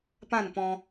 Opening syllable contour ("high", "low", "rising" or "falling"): falling